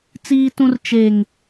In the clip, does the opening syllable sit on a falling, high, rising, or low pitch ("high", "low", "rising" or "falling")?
high